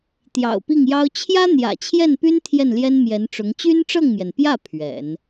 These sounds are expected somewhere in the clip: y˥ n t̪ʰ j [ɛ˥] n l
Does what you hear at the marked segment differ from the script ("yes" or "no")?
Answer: yes